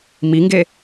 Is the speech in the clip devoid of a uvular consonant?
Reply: yes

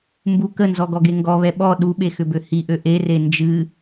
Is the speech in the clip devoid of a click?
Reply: yes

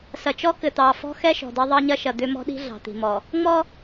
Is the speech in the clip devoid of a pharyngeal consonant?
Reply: yes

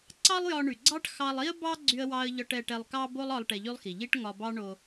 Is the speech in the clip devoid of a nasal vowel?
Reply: yes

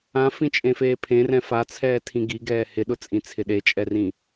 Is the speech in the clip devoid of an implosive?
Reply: no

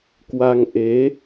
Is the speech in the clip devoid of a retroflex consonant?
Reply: yes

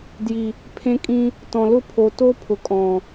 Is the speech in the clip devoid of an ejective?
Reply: no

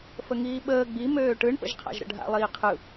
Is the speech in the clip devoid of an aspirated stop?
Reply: no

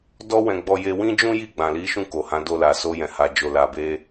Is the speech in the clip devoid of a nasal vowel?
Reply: no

